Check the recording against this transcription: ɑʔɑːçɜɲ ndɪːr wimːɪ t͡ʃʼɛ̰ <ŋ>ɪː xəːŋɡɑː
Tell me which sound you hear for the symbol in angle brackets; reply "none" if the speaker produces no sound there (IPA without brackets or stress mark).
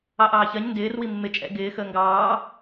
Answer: ɡ